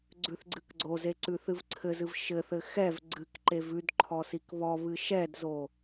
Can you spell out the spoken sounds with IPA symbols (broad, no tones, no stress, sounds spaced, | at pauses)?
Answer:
ɡ͡ǀ ʉ θ ɡ͡ǀ ɨ k ɡ͡ǀ o z e ǀ ʉ θ ɨ v ǀʰ ɘ z ɨ v ʃ ɘ θ ɘ x ɛ v ɡ͡ǀ ɨ k ǃ e v ʉ d ǃʰ ɔ s i k β ɔ β ɨ ʃ ɛ d z o